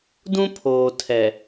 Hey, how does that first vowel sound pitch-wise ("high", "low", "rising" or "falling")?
high